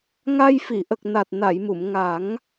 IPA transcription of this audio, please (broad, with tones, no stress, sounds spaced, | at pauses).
ŋ a˧ j f i˨˩˨ ʔ ə˨˩ k̚ n a˨˩ t̚ n a˨˩˨ j m u˨˩˨ m ŋ a˨˩˦ ŋ